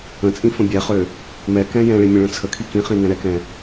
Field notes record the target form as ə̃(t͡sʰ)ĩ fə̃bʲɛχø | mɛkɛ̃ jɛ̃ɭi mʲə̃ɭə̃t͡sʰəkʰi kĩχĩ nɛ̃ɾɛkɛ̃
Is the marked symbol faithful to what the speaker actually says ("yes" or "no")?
no